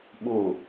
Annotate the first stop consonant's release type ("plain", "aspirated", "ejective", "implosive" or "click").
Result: implosive